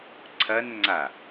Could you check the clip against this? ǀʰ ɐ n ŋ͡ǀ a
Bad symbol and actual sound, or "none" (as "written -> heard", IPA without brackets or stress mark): none